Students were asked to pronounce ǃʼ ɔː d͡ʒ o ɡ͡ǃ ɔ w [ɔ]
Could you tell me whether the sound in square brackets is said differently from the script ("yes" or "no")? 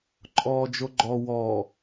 no